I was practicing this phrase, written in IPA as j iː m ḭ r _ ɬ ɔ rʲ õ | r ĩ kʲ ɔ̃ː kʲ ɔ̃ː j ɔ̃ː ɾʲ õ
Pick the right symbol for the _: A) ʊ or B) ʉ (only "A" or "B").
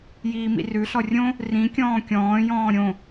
B